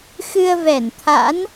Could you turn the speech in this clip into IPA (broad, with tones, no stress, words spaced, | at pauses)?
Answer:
xɨ˧ə̯vɛ˧˩nt̪ʰa̰˧˥n